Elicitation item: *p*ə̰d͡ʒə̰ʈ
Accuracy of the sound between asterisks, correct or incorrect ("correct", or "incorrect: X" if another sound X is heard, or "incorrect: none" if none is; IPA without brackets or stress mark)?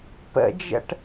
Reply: correct